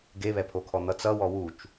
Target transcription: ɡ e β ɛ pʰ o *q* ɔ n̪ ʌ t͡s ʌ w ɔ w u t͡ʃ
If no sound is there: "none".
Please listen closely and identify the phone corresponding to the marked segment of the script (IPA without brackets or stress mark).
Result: kʰ